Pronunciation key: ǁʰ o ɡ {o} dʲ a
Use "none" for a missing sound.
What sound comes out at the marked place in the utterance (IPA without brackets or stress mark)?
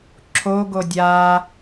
o